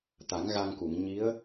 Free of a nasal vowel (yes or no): yes